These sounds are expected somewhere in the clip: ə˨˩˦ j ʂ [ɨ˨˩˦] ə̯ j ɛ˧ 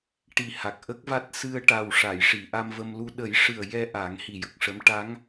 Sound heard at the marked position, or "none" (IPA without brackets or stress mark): ɨ˨˩